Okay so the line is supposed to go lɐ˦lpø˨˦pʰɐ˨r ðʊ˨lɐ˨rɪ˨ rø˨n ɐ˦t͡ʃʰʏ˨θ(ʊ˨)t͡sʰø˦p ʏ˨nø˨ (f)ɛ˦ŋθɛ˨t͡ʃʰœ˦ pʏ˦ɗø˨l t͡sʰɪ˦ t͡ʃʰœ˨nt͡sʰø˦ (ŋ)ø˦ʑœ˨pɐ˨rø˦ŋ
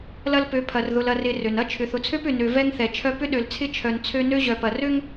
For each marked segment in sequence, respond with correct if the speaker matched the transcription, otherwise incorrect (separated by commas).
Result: correct, incorrect, incorrect